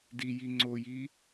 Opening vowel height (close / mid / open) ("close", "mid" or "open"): close